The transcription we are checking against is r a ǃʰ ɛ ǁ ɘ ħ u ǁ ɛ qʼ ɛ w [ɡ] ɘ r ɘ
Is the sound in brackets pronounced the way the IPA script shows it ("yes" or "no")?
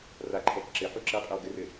yes